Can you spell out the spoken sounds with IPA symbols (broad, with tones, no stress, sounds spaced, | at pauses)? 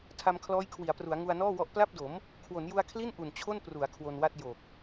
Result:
tʰ a˧ m kʰ l ɔː˦˥ j kʰ w i˩˦ a̯ p r u˩˦ a̯ ŋ u˧ a̯ n ɔː˥˩ w ɔ˦˥ ʔ p l a˥˩ p̚ d o˩˦ m | kʰ w o˩˦ n j u˧ a̯ kʰ l i˥˩ n ʔ u˨˩ n t͡ɕʰ o˥˩ n p r u˩˦ a̯ kʰ w o˧ n w a˥˩ t̚ j o˨˩ k̚